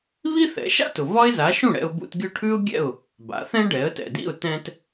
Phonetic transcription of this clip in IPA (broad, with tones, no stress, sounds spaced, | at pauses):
β i˥ θ ɛ̰˩˥ ʃ a̰˥ t ʊ˩ v ɒ˥ ɪ̯ z a˩˥ ʃ ũ˥˩ ɽ ɛ̰˧ ʊ̯ b ṵ˧ t ɡʲ ʊ˥˩ ʈʰ ʉ˥ ʊ̯ ɡʲ ɛ̰˥˩ ʊ̯ | b a̰˩˥ θ ɛ̃˥ ɖ ɛ˩˥ ə̯ t ɛ̰˩ d ḭ˥˩ ʊ̯ t ɛ̃˧ t